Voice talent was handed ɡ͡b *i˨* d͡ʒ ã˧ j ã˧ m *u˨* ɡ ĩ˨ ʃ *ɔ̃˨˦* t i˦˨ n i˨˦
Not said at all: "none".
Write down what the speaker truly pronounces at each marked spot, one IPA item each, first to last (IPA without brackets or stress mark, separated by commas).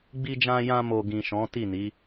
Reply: i˧, o˨, ɔ̃˨˦